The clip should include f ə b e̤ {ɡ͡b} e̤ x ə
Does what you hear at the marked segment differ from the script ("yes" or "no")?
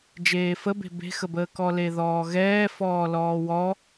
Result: yes